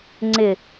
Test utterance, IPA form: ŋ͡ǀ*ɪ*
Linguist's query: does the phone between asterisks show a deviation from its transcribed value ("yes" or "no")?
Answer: no